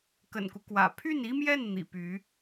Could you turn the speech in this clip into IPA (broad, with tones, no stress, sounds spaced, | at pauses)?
k ə̰˨˩ n k u˦ k w ä̰˨˩ pʰ y˥˩ n i˥ m j ɛ˥˩ n n̪ ḭ˨˩ p y˧˥